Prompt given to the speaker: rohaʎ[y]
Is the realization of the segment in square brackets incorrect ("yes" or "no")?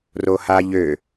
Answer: yes